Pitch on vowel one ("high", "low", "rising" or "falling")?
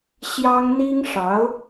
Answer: high